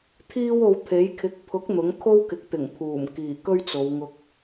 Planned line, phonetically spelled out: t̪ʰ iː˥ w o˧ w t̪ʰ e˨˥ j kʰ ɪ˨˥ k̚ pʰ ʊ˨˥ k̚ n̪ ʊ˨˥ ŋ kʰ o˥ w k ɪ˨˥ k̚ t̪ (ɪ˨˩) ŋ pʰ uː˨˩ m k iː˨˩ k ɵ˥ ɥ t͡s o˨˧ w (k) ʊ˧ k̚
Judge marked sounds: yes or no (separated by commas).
yes, no